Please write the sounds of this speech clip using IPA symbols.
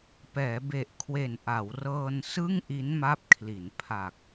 pɛː˩˦be˨˩ʔkʰwe˨˩n ʔa˩˦wrɤː˧n sɯ˥˩ŋʔi˦˥nma˦˥p̚kʰli˩˦n pʰa˨˩k̚

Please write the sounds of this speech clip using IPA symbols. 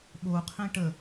ɓoqʰẽ ʈə

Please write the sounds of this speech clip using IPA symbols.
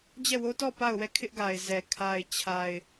d͡ʑɛ˦˨wo˦tɔ˦˨ pa˦˨ʊ̯wɛ˦˨ kʰɪ˦ʔɡa˨ɪ̯zɛ˨ kʰa˨ɪ̯t͡ɕʰa˨ɪ̯

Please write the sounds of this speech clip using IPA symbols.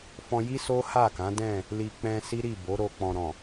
fɔ̃˧ji˦ so˦ha˦˨kã˨˦ dɛ̃˦˨ | li˨k͡pɛ̃˧ si˦ɾi˦˨bo˨˦ɾo˧ k͡pɔ̃˨ɾɔ̃˨

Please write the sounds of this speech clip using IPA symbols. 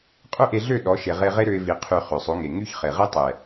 qʼø˦ʔe˧ɮø˦˨ ɗɔ˨˦ʃe˨ʁe˧ ʁe˦ɾø˧ɪ̯vi˨ qʰy˨ χø˨sˤo˨˦ŋe˨ ŋy˦çχe˨ ʁe˦tˤɛ˨

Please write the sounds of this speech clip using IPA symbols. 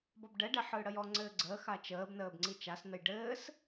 bɔbɖɛɖɛ ħɯːɽəjɔŋ͡ǀɘː ɡ͡ǀəːx at͡ʃəːbnəːb ŋ͡ǀit͡ʃasnəj ɖɘːs

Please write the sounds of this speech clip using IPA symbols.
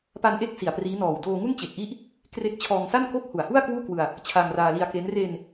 pa˧nʔe˦˥k̚ si˨˩a̯priː˦˥nɔː˨˩w doː˧ŋu˥˩n t͡ɕe˨˩k̚ʔi˦˥ʔ | kre˦˥k̚ t͡ɕʰɔː˧ŋsa˥˩nko˥˩k̚ hu˨˩a̯hu˥˩a̯kwuː˥˩kwɯ˧a̯ | t͡ɕʰa˧ŋraː˧li˧a̯ke˦˥n re˧n

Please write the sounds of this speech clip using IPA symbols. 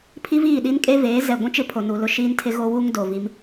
pʰi˦viː˦˨ɗi˦nkʼe˦ veː˨˦zɛ˨ ɡʷũ˦t͡ʃɪ˦pʰo˨ nu˨ lʊ˦ʃiː˦ntʰɪ˦ ɣo˦wu˦ŋdo˨ vi˦m

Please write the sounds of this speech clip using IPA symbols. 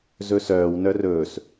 zɵsœːw nœrɵːs

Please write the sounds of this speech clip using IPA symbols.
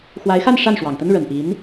xwa˧˥ɪ̯xa˥˧n ʂa˥˩nʂwɑ˨˩ŋt̪ə˥n ɻə˨˩npi˧˥n

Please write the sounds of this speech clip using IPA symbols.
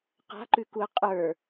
qa̤ǃʉkuə̯ qʼə˞

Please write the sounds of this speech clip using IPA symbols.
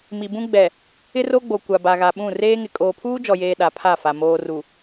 mi˨bũ˦ ɡ͡bɛ˨ | ɪ˦ro˦ɡ͡bo˨ kʷa˨ba˨ɣa˨ɓũ˦˨ reː˦ŋɪ˨ kʼoː˨pʰuː˦d͡ʒɔ˨jeː˨ ɗa˨pʰa˦˨fa˨ moː˨ru˨

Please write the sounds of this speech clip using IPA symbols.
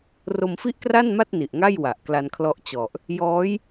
ro˧mfi˥˩ʔkra˥˩nma˥˩t̚ ni˨˩ʔŋa˥˩jwa˨˩ʔ kla˧nkʰlɔ˦˥ʔt͡ɕɔ˨˩ʔ | jɔː˦˥j

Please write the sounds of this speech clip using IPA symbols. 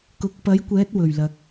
kʊ˨k̚pɐ˨˥jkʷɛː˨˥t̚wɵ˨˩ɥ lɐ˨k̚

